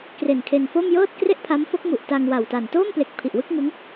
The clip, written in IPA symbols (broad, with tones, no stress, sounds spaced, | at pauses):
k r e˨˩ n kʰ e˧ n f o˥˩ m j ɤː˥˩ t̚ k r e˥˩ ʔ pʰ a˦˥ m f o˦˥ k̚ m u˨˩ ʔ t a˧ ŋ w a˨˩ w t a˨˩ n t oː˥˩ m p l e˨˩ k̚ pʰ i˨˩ ʔ w ɯ˥˩ k̚ ŋ ɯ˦˥ ŋ